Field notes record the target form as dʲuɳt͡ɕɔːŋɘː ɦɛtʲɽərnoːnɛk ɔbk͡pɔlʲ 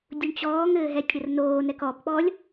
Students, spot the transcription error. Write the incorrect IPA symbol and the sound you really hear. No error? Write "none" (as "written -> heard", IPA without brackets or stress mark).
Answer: none